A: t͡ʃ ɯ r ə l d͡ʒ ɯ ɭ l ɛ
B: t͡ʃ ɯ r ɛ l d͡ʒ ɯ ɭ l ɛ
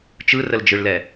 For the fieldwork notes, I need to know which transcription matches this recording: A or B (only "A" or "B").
A